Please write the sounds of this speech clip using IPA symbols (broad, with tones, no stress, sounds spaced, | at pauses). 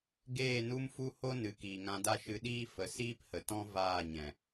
ɡ eː˦˨ n u˦ m f u˦ h o˦ n ɨ˨ k iː˨ ŋ ã˧ d a˦ ʃ ɨ˧ ɗ iː˦ f ə˧ s iː˦ p h ə˨ t ɔ̃˦ v aː˦˨ ɲ ɛ̃˨